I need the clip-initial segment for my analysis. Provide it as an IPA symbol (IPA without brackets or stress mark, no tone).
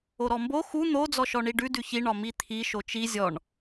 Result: o